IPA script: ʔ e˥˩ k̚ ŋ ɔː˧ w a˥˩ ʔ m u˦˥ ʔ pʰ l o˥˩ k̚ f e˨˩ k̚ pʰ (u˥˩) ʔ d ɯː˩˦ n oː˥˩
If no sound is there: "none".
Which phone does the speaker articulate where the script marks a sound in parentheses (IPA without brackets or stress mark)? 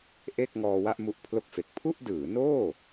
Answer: u˥˩